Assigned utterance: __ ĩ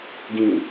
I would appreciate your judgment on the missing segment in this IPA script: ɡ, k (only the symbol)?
ɡ